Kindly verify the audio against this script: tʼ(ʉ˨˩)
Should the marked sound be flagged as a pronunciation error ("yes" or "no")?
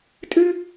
yes